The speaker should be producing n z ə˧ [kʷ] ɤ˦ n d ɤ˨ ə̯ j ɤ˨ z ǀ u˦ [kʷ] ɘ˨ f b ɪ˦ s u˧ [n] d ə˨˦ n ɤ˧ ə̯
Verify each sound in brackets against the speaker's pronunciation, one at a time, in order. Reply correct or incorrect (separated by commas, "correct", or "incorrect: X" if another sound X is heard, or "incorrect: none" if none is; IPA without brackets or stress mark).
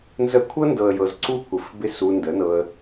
incorrect: kʷʰ, correct, correct